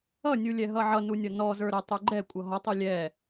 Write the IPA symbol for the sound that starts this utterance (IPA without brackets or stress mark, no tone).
ʌ